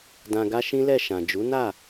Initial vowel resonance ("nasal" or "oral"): nasal